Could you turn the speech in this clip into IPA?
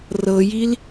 r ɤ j i l

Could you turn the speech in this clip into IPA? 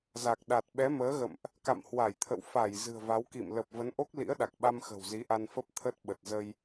z a˨˩ k̚ ɗ a˨˩ t̚ ɓ ɛ˨˦ m əː˨˦ ɣ ə̰˧˨ m ʔ | k a̰˧˨ m h w a˧˩ j t̪ʰ ə̰˧˨ w f a˧˩ j z ɨ̤˨˩ ə̯ v a˨˦ w k ḭ˧˨ m l ə˨˩ p̚ v ə˨˦ n ʔ o˦˥ k̚ l ḭ˧˥ ə̯ ɗ a˨˩ k̚ ɓ a˧ m x ə̤˨˩ w z i˨˦ ʔ a˧ n f ə˦˥ p̚ t̪ʰ ə˦˥ t̚ ɓ ə˨˩ t̚ z ə˧ j

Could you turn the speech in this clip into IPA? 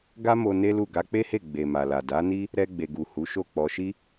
ɡ a˦ m o˧ n e˦ l u˦˨ ɡ a˧ k͡p e˦ h e˦˨ ɡ͡b e˨ m a˨ l a˨ d a˨˦ n i˦ | ɾ ɛ˧ ɡ͡b e˨ ɡ u˨ h u˨˦ ʃ o˦˨ k͡p ɔ˧ ʃ i˦

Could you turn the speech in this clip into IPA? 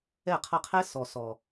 ɛ˦˨ qʰ ʌ˧ qʰ ɛ˦ s ɔ˨ s ɔ˨

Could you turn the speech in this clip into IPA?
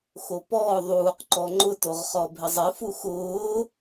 x o p ɔː ðˤ uː q ǃ ɔ ŋ͡ǃ ʊ t o ʁ χ ɔ bʱ ɪ zˤ ɪ f u x ʊː

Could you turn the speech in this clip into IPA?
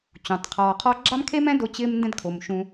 t͡ɕ ũ˩ tˤ qʰ ɔː˨ qʰ ɔ˦ ɡ͡ǁ a˥ m kʰ e˥ m ɛ̃˥ d o˦ t͡ɕ ɪː˦ m n d ɛ̃˦ d kʰ o˩ m ʃ ũ˨

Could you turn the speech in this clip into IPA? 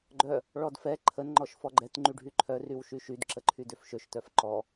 ɡ͡ǃ œ | ɭ ɔ d f ɛ ǃʰ ə n ŋ͡ǃ ɔ ʃ f ɔ ɡ͡ǃ ɛ t ŋ͡ǃ y ɖʱ y ǃʰ œ r y w ʃ y ʃ y d ǁ ə ǃʰ y d ø f ʃ ø ʃ t œ f ǃ ɔ

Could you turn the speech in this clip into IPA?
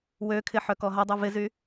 w ø kʰ ɪ ħ œ k ɔ ɦ ɐ dˤ y v ɪ z y

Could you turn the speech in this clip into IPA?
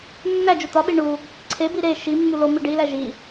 nː æ d͡ʒ u t̪ ɒ ɓ i ɳ u | ǀʰ e b i ɾ e ʃ i mː u l o m i ɖ i l æ ʒ i

